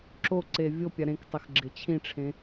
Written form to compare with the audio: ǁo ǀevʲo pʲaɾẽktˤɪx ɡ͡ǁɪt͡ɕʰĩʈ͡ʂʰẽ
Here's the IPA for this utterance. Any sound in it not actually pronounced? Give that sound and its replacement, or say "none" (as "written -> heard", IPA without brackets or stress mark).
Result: none